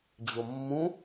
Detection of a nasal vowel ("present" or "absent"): present